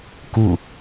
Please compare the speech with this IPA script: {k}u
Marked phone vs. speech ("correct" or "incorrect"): correct